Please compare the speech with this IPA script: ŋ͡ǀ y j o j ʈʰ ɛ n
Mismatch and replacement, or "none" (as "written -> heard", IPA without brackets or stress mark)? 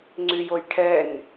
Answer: none